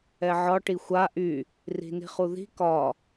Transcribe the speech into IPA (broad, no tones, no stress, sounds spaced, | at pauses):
ɛ ʕ ɒ ʈ i xʷ a ʔ y | r i̤ n i̤ χ u ð i̤ k ɒ